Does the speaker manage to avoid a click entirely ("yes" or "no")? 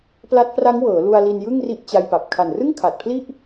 yes